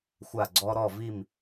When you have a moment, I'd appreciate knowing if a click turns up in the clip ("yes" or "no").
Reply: yes